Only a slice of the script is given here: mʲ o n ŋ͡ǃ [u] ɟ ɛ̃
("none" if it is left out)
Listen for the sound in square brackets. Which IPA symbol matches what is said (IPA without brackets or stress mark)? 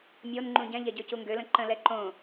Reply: ũ